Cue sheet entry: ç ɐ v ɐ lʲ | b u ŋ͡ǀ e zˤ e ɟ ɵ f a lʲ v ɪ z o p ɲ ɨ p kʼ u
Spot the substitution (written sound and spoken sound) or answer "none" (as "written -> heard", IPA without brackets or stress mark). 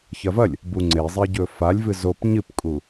ɪ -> ɨ